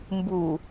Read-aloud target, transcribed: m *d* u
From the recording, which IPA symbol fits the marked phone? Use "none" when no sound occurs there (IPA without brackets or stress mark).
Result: b